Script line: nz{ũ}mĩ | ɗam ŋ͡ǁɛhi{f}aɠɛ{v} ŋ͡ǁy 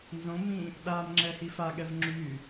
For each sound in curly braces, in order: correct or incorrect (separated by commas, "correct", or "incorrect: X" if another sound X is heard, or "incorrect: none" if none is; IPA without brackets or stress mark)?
incorrect: õ, correct, correct